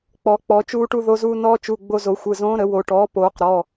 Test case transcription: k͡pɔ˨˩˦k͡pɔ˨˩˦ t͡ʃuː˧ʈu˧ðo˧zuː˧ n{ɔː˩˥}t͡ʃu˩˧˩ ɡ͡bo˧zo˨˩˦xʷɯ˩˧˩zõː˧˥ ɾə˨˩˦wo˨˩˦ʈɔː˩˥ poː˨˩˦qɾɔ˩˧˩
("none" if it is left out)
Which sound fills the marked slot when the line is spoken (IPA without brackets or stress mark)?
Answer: ɔː˧